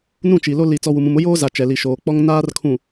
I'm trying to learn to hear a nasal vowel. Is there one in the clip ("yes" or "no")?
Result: yes